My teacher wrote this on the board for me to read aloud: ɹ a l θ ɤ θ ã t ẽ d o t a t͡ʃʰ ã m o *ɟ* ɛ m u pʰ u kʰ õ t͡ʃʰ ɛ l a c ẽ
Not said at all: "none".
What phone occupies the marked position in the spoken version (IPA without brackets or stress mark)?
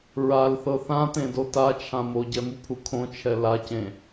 ɟ